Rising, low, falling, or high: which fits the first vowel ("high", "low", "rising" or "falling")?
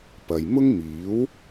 low